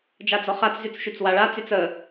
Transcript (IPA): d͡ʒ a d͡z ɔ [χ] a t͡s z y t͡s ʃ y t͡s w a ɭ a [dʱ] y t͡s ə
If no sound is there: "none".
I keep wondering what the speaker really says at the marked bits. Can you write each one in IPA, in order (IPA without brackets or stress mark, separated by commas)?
χ, t͡s